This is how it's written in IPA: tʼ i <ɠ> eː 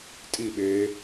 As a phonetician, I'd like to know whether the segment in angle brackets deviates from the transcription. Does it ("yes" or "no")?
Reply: yes